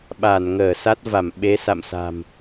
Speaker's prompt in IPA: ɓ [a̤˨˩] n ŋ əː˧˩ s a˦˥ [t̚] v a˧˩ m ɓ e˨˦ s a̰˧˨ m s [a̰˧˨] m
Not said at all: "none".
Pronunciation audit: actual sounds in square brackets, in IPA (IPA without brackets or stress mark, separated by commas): a˧˩, t̚, a̤˨˩